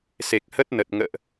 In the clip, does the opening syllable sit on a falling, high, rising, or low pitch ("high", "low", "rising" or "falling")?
low